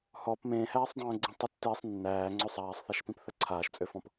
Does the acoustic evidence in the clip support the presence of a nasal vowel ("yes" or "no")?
yes